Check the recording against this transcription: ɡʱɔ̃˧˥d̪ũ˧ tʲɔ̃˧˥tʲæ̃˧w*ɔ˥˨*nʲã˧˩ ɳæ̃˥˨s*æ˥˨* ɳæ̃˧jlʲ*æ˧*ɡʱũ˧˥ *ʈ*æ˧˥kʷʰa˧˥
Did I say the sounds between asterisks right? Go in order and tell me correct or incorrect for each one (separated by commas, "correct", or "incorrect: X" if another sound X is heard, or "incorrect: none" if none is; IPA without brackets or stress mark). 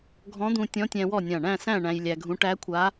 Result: correct, incorrect: æ̃˥˨, correct, correct